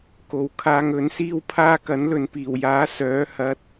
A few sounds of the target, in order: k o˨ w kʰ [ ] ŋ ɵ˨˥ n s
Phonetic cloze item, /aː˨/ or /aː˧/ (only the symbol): aː˧